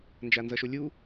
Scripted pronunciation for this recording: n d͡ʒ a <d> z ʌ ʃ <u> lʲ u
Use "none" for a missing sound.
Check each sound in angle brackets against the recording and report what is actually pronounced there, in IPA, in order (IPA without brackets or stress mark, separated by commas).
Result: n, o